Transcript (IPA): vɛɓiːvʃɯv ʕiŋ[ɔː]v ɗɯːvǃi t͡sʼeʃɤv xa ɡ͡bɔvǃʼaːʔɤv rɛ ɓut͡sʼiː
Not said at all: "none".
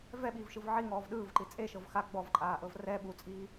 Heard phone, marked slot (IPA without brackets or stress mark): ɔː